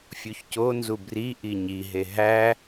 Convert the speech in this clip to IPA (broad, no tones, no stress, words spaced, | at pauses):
fʲuçconzu bri ʔiɲiɦe ɦæ